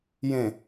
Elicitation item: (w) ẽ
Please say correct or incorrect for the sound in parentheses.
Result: incorrect